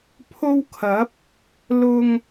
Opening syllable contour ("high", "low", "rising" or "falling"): high